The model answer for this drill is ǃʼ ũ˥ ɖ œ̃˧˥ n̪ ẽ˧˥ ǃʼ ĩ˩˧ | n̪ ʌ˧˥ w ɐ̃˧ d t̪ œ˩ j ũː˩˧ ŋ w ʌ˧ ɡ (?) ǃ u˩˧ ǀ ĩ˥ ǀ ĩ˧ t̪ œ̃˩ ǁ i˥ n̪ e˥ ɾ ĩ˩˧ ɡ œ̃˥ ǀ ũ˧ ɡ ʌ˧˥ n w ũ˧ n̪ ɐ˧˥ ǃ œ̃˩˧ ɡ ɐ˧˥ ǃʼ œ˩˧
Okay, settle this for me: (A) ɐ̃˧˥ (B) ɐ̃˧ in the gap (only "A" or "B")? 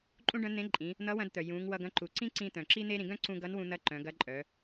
A